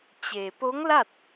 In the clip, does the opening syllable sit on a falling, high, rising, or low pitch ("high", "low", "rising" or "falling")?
low